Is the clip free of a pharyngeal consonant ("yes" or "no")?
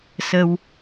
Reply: yes